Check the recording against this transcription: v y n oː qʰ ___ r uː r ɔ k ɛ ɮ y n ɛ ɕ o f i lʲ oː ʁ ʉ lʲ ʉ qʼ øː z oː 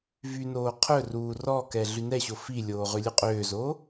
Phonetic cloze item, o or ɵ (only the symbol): ɵ